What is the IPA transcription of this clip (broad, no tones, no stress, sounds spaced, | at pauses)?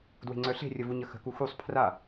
d w e̤ ŋ͡ǀ œ ɬ e̤ rʲ ə v u ɲ ə x ə̤ k u x u sˤ pʰ r a